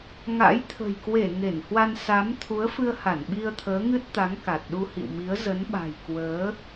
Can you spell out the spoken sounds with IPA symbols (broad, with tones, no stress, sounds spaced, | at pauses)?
ŋ a̰˧˥ j t̪ʰ ə̤˨˩ j k w e˧˩ ŋ e˧˩ n h w a˧ n s a˨˦ m t̪ʰ u˨˦ ə̯ f ɨ˧ ə̯ h a˧˩ n ɓ i˧ ə̯ t̪ʰ əː˨˦ ŋ ɨ˦˥ t̚ t̪ a˨˦ ŋ k a˨˩ t̚ ɗ u˧ h ḭ˧˨ w m i˨˦ ə̯ z ə˨˦ n ɓ a̤˨˩ j k w əː˨˦